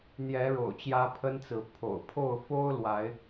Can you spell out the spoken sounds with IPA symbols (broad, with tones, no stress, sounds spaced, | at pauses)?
n̪ j ɛ˨˦ ɻ o̰˨˩ ʊ̯ t͡ɕ j ä˦ pʰ ə˦ n t͡s ɹ̩˨˦ pʰ o̰˨˩ ʊ̯ pʰ o˥˨ ʊ̯ f o˦ ʊ̯ l w a˨˦ ɪ̯